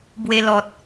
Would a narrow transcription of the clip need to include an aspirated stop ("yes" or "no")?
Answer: no